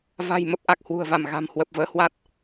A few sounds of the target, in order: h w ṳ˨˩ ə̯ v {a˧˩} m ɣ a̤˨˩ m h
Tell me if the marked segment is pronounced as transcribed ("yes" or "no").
yes